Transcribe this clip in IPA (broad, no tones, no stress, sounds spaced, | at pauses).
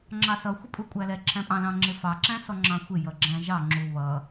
ŋ͡ǁ ɑ s ʌ xʷ ɪ pʼ u kʷʼ æ l ɛ ǁʰ æ̃ pʼ ɑ̃ l ɑ̃ ŋ͡ǁ ɪ f ɑ ǁ æ̃ s ɔ ŋ͡ǁ ɑ̃ xʷ ɪ j ʌ ɡ͡ǁ æ̃ ʒ ɑ ŋ͡ǁ u β ʌ